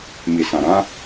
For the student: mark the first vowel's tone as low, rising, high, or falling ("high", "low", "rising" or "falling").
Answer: low